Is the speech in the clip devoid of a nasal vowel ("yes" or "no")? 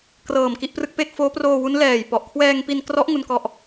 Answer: yes